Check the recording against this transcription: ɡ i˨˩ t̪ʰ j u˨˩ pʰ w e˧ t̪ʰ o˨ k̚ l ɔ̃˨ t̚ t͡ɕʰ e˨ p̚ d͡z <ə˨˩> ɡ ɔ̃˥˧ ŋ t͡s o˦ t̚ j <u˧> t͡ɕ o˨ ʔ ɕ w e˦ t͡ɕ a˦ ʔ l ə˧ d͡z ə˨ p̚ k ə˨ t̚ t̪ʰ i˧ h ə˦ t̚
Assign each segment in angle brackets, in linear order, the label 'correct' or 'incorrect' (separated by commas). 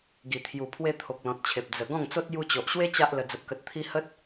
correct, correct